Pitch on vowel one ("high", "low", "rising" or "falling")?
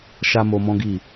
high